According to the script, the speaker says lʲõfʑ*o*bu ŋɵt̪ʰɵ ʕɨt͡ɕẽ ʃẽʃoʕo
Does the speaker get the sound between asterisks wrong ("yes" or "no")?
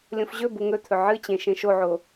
yes